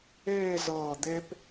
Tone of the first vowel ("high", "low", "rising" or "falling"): falling